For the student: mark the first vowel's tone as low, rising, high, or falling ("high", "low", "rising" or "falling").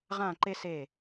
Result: falling